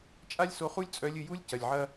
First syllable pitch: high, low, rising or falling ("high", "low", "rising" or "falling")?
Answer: high